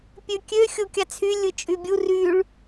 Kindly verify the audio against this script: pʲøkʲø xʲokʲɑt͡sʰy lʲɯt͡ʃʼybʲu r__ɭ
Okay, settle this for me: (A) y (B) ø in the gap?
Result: A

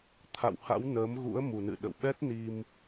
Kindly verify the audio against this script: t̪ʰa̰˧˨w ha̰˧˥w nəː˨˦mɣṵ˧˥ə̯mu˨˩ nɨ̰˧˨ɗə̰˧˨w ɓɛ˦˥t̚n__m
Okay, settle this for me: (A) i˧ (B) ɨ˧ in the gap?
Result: A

